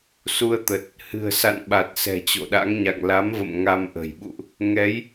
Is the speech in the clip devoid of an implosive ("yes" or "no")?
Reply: no